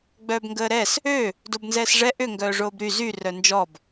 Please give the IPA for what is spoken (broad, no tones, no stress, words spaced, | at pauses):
ɡ͡bœːbŋɡəːɾɛs | ø | dobnzɛːsʐɛ ʔʏ ŋɡœːʐoːbɾy zy rœnd͡ʒɔb